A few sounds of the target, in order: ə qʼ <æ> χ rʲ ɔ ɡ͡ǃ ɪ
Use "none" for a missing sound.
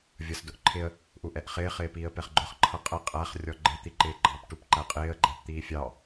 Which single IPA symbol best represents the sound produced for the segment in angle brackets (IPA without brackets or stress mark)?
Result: æ